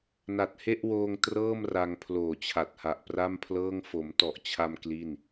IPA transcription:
n a˨˩ t̚ h e˥˩ ʔ w oː˧ ŋ t r ɤː˥˩ m r a˧ ŋ pʰ l oː˨˩ t͡ɕʰ a˨˩ t̚ h a˨˩ ʔ p r a˥˩ m pʰ l ɤː˥˩ ŋ f o˩˦ m t ɔ˨˩ ʔ t͡ɕʰ a˧ m k l i˥˩ n

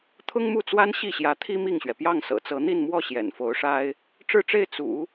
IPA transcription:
t̪ʰ ʊ˥ ŋ m u˥˩ t͡s w a˥ n ɕ i˥˩ ɕ j ä˧˥ t̪ʰ i˥ m i˥˩ ŋ ɕ ɥ ɛ˩ p j ɑ˥˩ ŋ s ɤ̰˨˩ t͡s ɤ˧˥ n̪ i˥˧ n m w ɔ˥˩ ɕ j ɛ̰˨˩ n f o˧˥ ʊ̯ ʂ a˥ ɪ̯ | ʈ͡ʂ ɻ̩˥˧ ʈ͡ʂ e˥˩ ɪ̯ t͡s ṵ˨˩˦

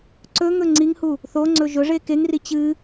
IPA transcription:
ǀ ɵ ŋ ɵ ŋ͡ǀ i ŋ h u | θ o ŋ͡ǀ ɵ ʒ ɵ ʐ e k e ŋ r i t͡ɕ ɨ

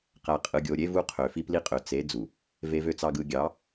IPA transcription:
q æ˨ qʼ ɯ˨ ɡʲ o˨ ɾʲ e˦ v u˦ qʰ ø˨ f i˦ p l i˦ qʼ ø˨ t͡s e˨˦ d͡z u˨ | v e˨ v ø˨ t͡s ɑ˨ ɡ ɯ˨ ɡʲ ɑ˨˦

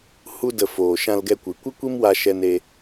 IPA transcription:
h u˧ d ə˨ f oː˨ ʃ ã˧ l ɡ ɛ˧ kʷ ɨ˨˦ kʷ ɨ˦ kʷ i˦ m w a˧ ʃ ɛ˧ n e˧

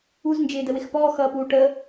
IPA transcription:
u z n d͡ʒ ɪː d ə w ɪ x p ɔː x ʌː p uː ʈ əː

